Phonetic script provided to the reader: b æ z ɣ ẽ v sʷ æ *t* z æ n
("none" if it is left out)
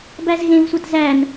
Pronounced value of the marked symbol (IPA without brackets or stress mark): t